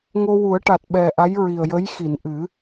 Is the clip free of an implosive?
no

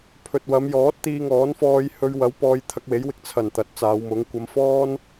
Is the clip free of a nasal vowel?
yes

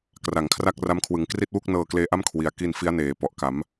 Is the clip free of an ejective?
yes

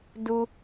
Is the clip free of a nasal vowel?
yes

